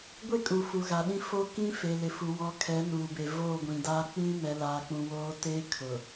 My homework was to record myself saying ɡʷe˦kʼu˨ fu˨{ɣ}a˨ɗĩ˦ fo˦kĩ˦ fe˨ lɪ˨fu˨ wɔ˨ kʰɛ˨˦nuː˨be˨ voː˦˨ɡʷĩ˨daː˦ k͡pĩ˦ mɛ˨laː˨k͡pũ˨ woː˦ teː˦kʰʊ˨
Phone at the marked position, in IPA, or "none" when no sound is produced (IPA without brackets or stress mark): ɣ